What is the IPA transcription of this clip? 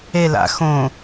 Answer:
e la̰ xõ

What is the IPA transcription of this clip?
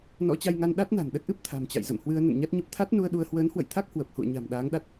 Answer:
nɔ̰˧˥t͡ɕa˧jŋa˧n ɗa˦˥t̚na̤˨˩n ɗə˦˥t̚ʔɨ˦˥p̚ t̪ʰa̤˨˩mt͡ɕa̰˧˨jzə̰˧˨mhwɨ˧ə̯ nə̰˧˨nɲa˦˥t̚ɲə˦˥p̚ t̪ʰa˦˥t̚nu˧ə̯ ɗu˧ə̯ hwəː˨˦nhwə̰˧˨jt̪ʰa˦˥k̚ hwə˨˩p̚hṵ˧˨ə̯ɲa̤˨˩m ɗaː˨˦ŋɗa˦˥t̚

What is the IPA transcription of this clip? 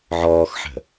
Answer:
ʕɔːxħə̤

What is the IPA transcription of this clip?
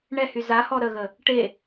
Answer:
ɳɛhy zahɔ ɾəɣə | ʈe

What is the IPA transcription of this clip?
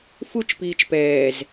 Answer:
fut͡ʃ piːt͡ʃpɛːz

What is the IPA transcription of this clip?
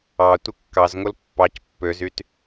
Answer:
ɑ tʷɯkːɑzŋol pːɑc pːøzyt

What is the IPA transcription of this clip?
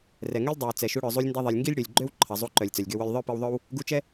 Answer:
rɛ˩ŋø˥lʲ dˤɛ˩w t͡sɛ˩ʃu˧ɽœ˩ zˤu˧lʲndɐ˧ðˤi˩lʲ ŋɡi˥lʲɽø˩lʲɡ͡ǃø˥w ǃʰɐ˩zˤu˧ǃœ˩lʲ t͡sœ˩lʲɡø˧wœ˧lʲ ðˤœ˥pi˧wðˤœ˥w | ɡu˧t͡ʃɛ˥

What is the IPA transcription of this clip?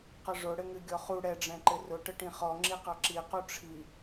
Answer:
qəʐʊ ɽɘŋɨɡʲɔχu ɽɛɖ͡ʐɛ̃ ǃɘrʊ ʈəʈĩχɔ ŋ͡ǁiqɑǁi quʈ͡ʂʰi

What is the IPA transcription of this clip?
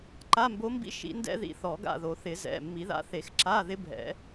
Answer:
ǃa˧˥˧mbo˧˥mbḭ˥ ʃḭ˧˥ndɛ̰˥ðḭ˧˥ θɔ˨˩˦ɡa̰˦˨ðo˨˩˦ θɪ˨˩˦zɛ̰˩˧˩ mːi˨˩˦ða̰˧˥θe˨˩˦x ǁa˧˥˧ ðɪ˧˥bʱɛ̰˨˩˦

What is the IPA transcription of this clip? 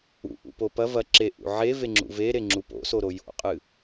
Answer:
ṵʔṵpo pɐ vɐ ǁeʔṵ ʕeveŋ͡ǁṵ veɾeŋ͡ǁu po̰soɾo jo̰qʼɨ

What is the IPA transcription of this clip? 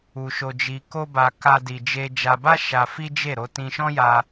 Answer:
u˧ʃo˧d͡ʒi˧ ko˦ba˧ ka˦di˧d͡ʒe˦ d͡ʒa˧ba˦ ʃa˧fi˦d͡ʒe˦˨ ɾo˧tĩ˧ʃɔ̃˦ja˧

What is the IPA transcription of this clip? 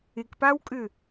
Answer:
ɪkpawkʼʏ

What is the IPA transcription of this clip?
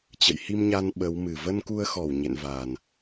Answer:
t͡ɕə̰˧˨jhi˧mɲa˧n ɓə˨˦wmɨ˨˩ və˧nku˧ə̯xɔ˧˩w ɲḛ˧˨nva˨˩n

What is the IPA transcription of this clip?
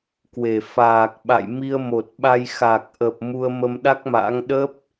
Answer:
kwe˧˩ faː˨˩k̚ ɓa̰˧˨j mi˧ə̯mo˨˩t̚ɓa˧j xa˨˩k̚ʔə˨˩p̚ mu˧ə̯mə˧mɗa˦˥k̚ma̰˧˥ŋ ɗə˦˥p̚

